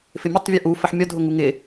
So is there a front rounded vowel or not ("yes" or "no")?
no